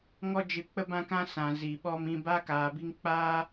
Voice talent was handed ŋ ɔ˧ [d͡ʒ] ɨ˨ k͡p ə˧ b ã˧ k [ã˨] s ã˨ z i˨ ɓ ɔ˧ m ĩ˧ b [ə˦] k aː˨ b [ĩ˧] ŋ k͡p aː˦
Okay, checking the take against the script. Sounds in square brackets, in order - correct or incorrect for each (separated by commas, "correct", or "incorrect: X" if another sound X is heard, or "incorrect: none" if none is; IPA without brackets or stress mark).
correct, incorrect: ã˧, incorrect: a˦, incorrect: i˧